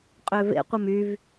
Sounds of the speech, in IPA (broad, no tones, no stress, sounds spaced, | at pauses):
qʼ ø v ḛ qʷ ə m y v